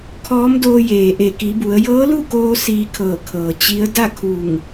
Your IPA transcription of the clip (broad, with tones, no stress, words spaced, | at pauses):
kʰɔː˧˥mdoː˧jeː˩ ʔe˧˩ki˩˧bu˩˧ə̯ jɤː˧˥lu˥˨koː˧ siː˧kʰɤː˧˩kʰɤː˩ t͡ɕi˧˥ə̯ da˥˨kʰu˧˩ŋ